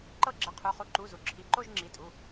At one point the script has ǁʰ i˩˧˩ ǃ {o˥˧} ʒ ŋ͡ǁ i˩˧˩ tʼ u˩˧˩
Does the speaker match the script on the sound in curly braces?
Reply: yes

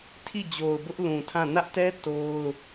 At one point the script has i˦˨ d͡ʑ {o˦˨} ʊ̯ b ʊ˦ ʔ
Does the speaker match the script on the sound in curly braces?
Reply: no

